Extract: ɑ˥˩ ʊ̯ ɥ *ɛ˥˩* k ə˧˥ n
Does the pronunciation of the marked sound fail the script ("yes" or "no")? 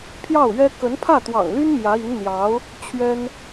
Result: yes